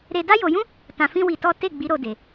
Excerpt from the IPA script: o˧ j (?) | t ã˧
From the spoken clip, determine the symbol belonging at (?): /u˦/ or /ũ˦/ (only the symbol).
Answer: ũ˦